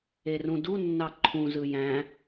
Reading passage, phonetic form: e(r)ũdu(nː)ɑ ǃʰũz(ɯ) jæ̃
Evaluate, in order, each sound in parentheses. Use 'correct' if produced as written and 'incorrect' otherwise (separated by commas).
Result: correct, correct, correct